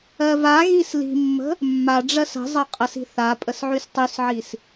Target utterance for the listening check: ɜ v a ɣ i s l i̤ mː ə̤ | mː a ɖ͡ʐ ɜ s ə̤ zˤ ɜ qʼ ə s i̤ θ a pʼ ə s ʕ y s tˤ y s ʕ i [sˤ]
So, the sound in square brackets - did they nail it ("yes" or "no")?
no